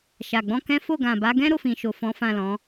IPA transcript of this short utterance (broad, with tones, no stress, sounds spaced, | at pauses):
ʃ a˨ ɡ͡b ɔ̃˧ k ɛ̃˦ f o˦˨ ɡ ã˨ b a˨˦ ɡ ɛ̃˦ ɾ o˦˨ f ĩ˨ ʃ o˨ f ɔ̃˨˦ f ã˦˨ l ɔ̃˨˦